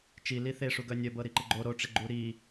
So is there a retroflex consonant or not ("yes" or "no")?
yes